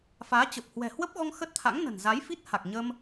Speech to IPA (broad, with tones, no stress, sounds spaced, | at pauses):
f aː˨˦ t͡ɕ ə˨˩ p̚ h w ɛ̤˨˩ h w ə˦˥ p̚ ɣ ɔ˧ ŋ x ə˦˥ t̚ t̪ʰ a̰˧˥ ŋ n ə̤˨˩ n z a˨˦ j f i˦˥ t̚ h a˨˩ k̚ ɲ ə˧ m